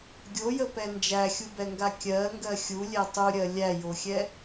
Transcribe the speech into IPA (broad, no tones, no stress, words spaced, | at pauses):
ɡʲojəpɛ nd͡ʒæxʲubɛŋɡa kʲɜŋɡɜ xʲulʲɛ tˤuɾʲɜ lʲæjoxʲɛ